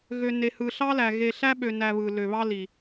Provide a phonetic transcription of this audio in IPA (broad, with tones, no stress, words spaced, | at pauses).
ɣø˨ ne˨hɯ˨ɬɑ˦læ˨ ɣe˨ɬæ˦ɓø˨næ˨ βɯ˨lø˨βɑ˦li˨